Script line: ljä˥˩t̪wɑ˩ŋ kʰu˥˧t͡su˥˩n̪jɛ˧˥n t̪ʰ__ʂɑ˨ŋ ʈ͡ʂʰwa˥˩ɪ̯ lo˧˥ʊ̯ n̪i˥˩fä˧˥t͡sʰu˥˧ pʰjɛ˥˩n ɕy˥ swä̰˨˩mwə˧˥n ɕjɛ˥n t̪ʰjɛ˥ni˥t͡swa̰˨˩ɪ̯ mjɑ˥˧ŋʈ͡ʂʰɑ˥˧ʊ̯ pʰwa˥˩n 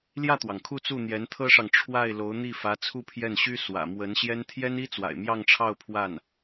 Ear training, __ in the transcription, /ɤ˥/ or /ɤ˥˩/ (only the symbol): ɤ˥